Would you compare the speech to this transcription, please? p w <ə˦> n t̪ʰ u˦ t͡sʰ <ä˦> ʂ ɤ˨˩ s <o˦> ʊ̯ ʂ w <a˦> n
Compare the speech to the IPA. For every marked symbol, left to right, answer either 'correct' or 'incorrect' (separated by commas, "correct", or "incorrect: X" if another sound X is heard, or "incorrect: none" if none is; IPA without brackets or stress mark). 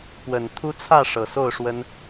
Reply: incorrect: ə˨˩, incorrect: ä˥˨, incorrect: o˥˨, incorrect: ə˦